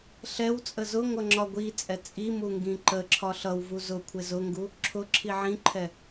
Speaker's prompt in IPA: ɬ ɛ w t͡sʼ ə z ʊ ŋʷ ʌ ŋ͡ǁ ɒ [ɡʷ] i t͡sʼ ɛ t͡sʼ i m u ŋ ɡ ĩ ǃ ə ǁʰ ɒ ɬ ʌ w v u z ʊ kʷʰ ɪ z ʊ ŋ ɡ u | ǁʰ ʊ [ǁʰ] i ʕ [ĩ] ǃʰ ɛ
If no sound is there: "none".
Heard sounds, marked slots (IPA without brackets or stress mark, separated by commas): ɡʷ, ǁʰ, ĩ